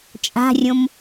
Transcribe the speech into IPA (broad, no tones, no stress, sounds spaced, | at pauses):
t͡ʃʼ a̤ rʲ õ m